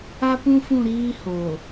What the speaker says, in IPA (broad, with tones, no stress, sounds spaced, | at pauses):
a˦ p ũ˦ f ũ˦˨ ɾ iː˦ h o˨